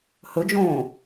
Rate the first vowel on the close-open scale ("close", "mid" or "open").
mid